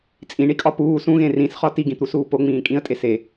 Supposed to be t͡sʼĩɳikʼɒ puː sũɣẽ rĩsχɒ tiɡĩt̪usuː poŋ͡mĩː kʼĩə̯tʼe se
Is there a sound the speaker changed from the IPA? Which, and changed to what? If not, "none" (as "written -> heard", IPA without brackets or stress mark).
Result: none